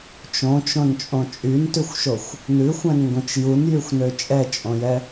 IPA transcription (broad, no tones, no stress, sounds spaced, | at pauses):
t͡ʃ õ t͡ʃ õ n t͡ʃʼ õ t͡ʃʼ y n t ʉ xʷ ʃ o xʷ | n ʉ xʷ ɛ̃ n ŋ ɡ õ t͡ʃ j u n j y xʷ n ø t͡ʃʼ ɛ t͡ʃʼ õ j ɛ